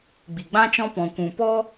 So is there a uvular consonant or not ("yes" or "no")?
no